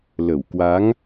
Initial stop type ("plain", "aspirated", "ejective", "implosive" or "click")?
plain